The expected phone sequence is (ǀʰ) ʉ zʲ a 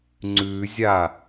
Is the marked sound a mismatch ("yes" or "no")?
yes